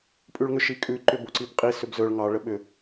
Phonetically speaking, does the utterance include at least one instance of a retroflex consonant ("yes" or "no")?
yes